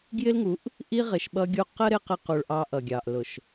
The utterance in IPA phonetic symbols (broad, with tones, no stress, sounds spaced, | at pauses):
ɡ j ɪ˦ l ŋ u˨˦ ʔ | ʔ i˦ ʁ ɪ˨ ʃ ɓ ʌ˦ ɡʲ u˦ q ə˦ ɾ ɪ˦ q ɪ˦ q u˨ ɭ ʔ ɑ˦ ʔ ʌ˨ ɡʲ ɑ˨ ʔ l ʊ˨ ʃ